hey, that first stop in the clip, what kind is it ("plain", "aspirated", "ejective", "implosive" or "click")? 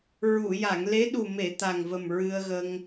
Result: implosive